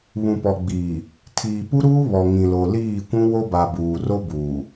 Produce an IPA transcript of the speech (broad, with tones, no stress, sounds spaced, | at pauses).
β ũ˨ p ɔ˨ ɡ͡b iː˨ | tʰ iː˨ p u˦ ɾ uː˦ β ɔ˨ ŋ ĩ˨ l o˨ l iː˦˨ kʷ ũ˦ w o˦ b a˨ b uː˨ r o˦ b uː˨